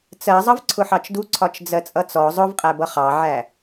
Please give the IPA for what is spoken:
t͡sɜ zˤʌvǀʰʊħɑt͡ʃdu ǀʰɒt͡ʃd͡zɜt͡sʼʌt͡sɔ zˤʊvqʼæbʌ χɑʕæ

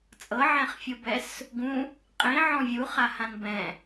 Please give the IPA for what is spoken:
t͡sʼɤʕɛ̃χfʲɯbɛs | ɡũ | qʼĩʕɔ̃ vʲuχahãn bɛ̃

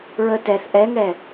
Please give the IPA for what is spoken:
ɹə tɛθ ʔɛŋɛ

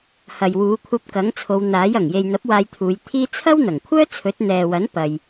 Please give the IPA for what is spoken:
hɐ˨jwuː˨˧kʷʰɐ˧p̚ kɐ˨˥ŋt͡sʰo˨˧wn̪aː˨˥j ɐ˨˩ŋje˨jn̪ɐ˨˥p̚ waː˧jt̪ʰuː˨˧jt̪ʰiː˥ t͡sʰɐ˥wn̪ɐ˨˩ŋkʷʰœː˥ t͡sʰɵ˨˥t̚n̪ɛː˨wɐ˨˥n pɐ˨j

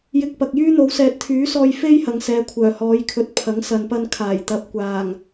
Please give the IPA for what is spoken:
jɪ˧k̚pɐ˨k̚jyː˥ n̪o˨˧wsɛː˨˥t̚t̪ʰyː˨˥sɔː˧j fe˥jhɐ˨ŋ sɛː˨˧kʷʰœː˨˩hɔː˨˧jkʰɵ˨˥t̚ pʰɐ˨˥ŋsɐ˨npɐ˧n kʰaː˨˩j t̪ɐ˨p̚kʷaː˨˩ŋ

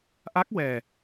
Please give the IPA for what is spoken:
ʔa˦˥k̚ wɛ˨˩

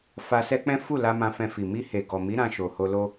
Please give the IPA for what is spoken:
fa˧sɛ˦k͡pɛ̃˦ fu˦˨la˧ mã˧fɛ̃˧fi˨ mi˧he˨ɡɔ˨mi˨˦ ɾã˧ʃo˨ho˧lo˦

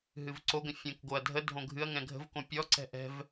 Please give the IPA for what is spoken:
ɦɨvǀoɡə̃ fʲə̃kɡoɐ̯ dʱə dʱõɡʱɨɐ̯ŋɛ̃ ɡʱə̤vkõ pʲɔǀɛ̤ ʔɛ̤v

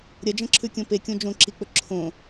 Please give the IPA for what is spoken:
ɾʲɐd͡ʒɐ̃ǁʰʉkʲõ pekʲõ d͡ʒõǁik͡pɵ ǁʰõ

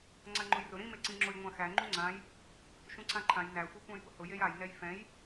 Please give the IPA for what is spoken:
ŋ͡ǀaŋ͡ǃʊjrʊ ɾĩ meǀĩŋ͡ǁʊj ŋʷãxæ ŋ͡ǃuŋ͡ǀãj | ʃũǀãǃʰãj næ xʷikʷãjbʊhʊ jejaj nɛjfɛ̃j

